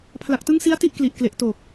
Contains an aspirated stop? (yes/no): yes